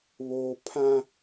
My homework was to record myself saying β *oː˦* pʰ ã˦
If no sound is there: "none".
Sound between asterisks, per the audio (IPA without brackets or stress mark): oː˦